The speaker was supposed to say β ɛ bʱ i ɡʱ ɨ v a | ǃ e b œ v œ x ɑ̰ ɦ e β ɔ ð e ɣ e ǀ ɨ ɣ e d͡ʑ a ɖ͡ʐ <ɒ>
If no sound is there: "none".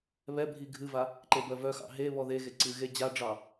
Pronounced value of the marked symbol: ɑ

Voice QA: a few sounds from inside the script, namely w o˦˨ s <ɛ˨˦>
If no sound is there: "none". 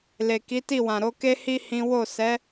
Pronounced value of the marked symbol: ɛ˨˦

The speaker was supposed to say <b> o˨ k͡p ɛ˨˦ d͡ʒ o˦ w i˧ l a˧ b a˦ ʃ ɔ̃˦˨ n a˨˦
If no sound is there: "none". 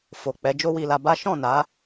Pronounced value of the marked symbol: f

